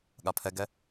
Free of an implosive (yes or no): no